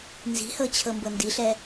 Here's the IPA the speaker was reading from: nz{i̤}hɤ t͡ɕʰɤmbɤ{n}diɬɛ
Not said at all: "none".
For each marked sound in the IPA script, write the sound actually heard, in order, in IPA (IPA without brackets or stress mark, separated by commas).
i̤, n